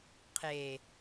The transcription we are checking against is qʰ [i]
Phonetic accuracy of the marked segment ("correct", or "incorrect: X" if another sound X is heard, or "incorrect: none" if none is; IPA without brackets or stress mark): incorrect: e